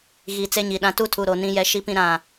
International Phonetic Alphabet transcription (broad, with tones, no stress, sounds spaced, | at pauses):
ɣ i˨ t͡s e˦ ɲ i˨ ɗ ã˦ t u˦ tʰ u˨ ɾ o˨ n ĩ˦ j ɛ˦ ʃ i˦ p ĩ˦ ɾ ã˦˨